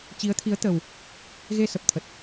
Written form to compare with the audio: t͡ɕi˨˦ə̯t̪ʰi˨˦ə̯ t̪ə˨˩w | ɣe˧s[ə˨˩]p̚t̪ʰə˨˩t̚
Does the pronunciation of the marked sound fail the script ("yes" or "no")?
no